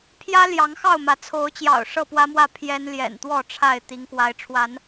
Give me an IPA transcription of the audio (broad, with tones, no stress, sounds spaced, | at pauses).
pʰ j ä˦ l j ɑ˨˦ ŋ x ɑ˥˨ ʊ̯ m ä˨˦ t͡sʰ o˨˦ ʊ̯ t͡ɕ j ɑ̰˨˩ ʊ̯ ʂ ɤ˥˨ p w ä˦ m w ä˥˨ pʰ j ɛ˦ n l j ɛ̰˨˩ n t̪ w ɔ˥˨ ʈ͡ʂʰ a˥˨ ɪ̯ t̪ i˨˦ ŋ k w a˨˦ ɪ̯ ʈ͡ʂʰ w a˨˦ n